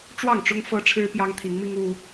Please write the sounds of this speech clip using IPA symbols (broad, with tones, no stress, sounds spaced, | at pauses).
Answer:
ʈ͡ʂ w ɑ˥˨ ŋ ʈ͡ʂ ʊ˦ ŋ f ɤ˦ ʈ͡ʂʰ ɻ̩˦ p j ɑ˦ ŋ t̪ʰ i˨˦ ŋ m i˦ ŋ u˦